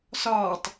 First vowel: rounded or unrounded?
rounded